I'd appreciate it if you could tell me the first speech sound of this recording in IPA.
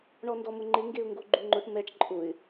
ɳ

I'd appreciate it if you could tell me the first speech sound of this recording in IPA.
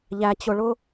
ʎ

